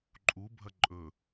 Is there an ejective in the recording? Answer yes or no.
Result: yes